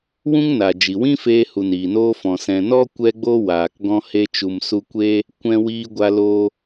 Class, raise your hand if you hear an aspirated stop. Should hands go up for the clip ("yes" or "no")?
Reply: no